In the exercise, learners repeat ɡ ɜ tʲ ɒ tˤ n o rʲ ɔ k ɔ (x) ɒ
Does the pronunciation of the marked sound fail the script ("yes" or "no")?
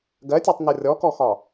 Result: no